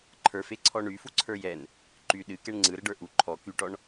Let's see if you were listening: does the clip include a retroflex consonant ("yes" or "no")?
yes